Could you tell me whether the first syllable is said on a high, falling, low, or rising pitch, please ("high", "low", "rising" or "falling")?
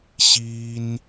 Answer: high